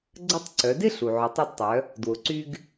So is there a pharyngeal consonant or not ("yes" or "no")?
yes